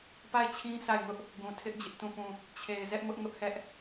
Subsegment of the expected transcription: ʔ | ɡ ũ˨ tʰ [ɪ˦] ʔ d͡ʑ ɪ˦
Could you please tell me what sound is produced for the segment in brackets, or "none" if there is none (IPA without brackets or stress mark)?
ɪ˦